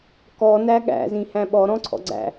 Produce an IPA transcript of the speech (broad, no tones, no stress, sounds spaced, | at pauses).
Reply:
k ɔ n æ ɠ æ̰ z ĩ h æ̃ ɓ ɔ ɾ ɔ̃ ǀʰ ɔ̰ ɡ͡ǀ æ̰